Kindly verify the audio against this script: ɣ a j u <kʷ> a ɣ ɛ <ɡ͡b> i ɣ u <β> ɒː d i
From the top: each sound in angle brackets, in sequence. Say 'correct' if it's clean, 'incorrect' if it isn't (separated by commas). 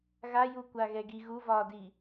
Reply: correct, incorrect, incorrect